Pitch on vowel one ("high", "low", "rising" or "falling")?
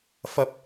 high